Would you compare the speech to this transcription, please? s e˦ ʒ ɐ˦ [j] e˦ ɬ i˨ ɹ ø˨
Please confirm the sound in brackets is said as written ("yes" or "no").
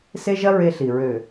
no